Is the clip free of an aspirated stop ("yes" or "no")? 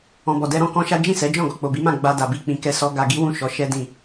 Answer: yes